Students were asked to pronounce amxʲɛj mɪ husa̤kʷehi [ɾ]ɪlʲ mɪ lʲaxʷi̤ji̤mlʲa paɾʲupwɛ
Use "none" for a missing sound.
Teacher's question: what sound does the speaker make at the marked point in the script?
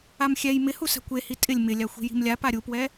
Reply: tʼ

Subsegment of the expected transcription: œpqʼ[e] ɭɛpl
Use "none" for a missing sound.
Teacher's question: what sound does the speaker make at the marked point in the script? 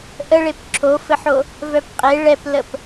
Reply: e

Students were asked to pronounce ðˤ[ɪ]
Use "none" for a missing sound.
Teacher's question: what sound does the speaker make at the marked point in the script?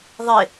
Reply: ɪ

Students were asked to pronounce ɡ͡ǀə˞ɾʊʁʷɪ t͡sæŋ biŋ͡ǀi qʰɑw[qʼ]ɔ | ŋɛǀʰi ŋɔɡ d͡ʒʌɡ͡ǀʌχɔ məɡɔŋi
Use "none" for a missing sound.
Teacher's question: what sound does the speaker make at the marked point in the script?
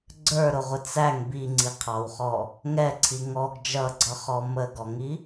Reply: χ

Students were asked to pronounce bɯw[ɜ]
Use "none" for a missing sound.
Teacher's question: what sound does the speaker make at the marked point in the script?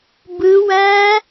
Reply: æ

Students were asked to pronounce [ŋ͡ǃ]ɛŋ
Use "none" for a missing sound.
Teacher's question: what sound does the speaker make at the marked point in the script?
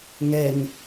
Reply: ŋ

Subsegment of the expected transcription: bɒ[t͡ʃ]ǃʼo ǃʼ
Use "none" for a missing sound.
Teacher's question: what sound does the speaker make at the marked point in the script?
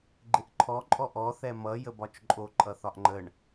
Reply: t͡ʃ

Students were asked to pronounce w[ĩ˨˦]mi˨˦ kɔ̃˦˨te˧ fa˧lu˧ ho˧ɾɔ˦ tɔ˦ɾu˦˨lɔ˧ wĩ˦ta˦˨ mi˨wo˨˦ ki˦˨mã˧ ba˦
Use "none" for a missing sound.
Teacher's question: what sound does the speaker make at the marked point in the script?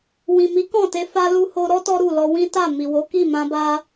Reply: ĩ˨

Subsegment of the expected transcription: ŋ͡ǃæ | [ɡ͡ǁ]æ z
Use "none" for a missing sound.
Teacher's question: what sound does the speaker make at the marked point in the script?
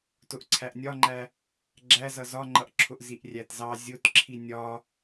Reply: ɡ͡ǁ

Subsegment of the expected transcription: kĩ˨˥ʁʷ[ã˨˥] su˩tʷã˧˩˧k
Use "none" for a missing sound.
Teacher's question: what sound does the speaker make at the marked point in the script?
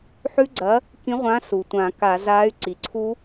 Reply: ã˨˥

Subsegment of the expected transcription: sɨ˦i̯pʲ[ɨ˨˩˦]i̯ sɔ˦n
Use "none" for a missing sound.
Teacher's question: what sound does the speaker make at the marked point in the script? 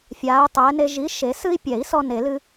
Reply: ɛ˨˩˦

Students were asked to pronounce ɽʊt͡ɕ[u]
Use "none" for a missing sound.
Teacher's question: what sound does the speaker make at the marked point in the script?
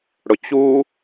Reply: u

